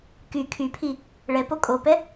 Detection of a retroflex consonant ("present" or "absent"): present